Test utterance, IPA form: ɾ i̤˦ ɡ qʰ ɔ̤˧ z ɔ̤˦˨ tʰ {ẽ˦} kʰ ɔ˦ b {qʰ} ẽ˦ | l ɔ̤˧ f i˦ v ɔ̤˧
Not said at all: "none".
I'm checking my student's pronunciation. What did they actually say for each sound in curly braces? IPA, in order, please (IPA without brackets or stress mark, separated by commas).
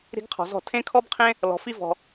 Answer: ẽ˦, qʰ